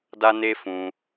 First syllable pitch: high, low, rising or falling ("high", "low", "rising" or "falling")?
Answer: high